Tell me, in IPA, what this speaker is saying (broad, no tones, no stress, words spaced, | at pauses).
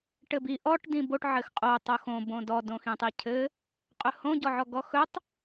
ʈɘbi ʔɔʈ dĩboʈ ʕɘxqʼo tˤoxõ bõdɔ dõxĩtˤicʰɘ | qʼɵhõ ɟɔʕɔɡɔxɵtˤ